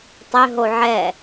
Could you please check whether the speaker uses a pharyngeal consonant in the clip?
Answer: yes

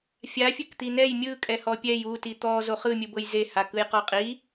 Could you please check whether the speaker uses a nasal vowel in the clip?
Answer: no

